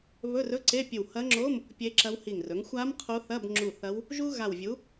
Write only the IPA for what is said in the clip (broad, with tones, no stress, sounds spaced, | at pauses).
β ɵ˧˥˧ r ɵ˧˥˧ ǀ e˧˥˧ pʲ ɨ˧˩ w h ɐ˧˥ ŋ͡ǁ o˧˥˧ m | pʲ e˧˥ ǁ ɐ˧˥ w h i˧˩ ŋ r ɵ˩˥ ŋ xʷ a˧˥ m qʰ o˧˥ θ ɐ˧˥˧ b ŋ͡ǁ u˧˩ θ ɐ˧˥ w | ʒ u˥ ɣ a˧˩ w vʲ u˩˥